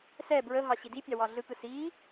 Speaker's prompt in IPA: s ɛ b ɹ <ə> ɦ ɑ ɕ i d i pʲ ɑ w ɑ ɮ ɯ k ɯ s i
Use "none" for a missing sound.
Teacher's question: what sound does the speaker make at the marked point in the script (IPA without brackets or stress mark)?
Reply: ə